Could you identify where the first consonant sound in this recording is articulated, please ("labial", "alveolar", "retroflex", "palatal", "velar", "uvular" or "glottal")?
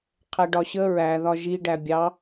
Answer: uvular